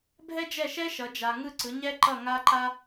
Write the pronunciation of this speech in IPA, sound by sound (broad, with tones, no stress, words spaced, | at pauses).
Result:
bʱɛ˥d͡ʒɛ˥˨ʃɛ˥ ʃʌ˨˥d͡ʒa˧ ŋɯ˥˨ǀɯ˨˥ɲɛ˥ ǃʌ˥˨ŋa˥ǃa˥